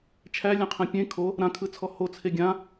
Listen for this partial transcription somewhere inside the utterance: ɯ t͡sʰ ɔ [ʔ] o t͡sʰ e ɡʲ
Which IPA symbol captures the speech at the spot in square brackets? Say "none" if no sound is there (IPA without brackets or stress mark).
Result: h